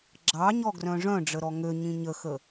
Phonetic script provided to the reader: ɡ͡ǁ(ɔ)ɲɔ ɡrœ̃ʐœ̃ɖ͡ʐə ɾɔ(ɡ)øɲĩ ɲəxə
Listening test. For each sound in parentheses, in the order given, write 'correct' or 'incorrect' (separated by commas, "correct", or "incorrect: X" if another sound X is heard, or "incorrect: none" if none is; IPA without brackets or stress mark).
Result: incorrect: ɑ, incorrect: ŋ